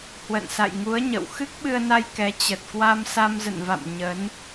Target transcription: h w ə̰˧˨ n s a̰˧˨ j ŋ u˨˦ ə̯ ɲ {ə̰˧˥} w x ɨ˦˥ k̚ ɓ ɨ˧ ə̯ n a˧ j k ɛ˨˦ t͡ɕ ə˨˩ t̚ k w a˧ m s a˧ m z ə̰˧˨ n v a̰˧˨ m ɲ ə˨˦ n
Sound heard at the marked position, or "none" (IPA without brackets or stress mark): ə̰˧˨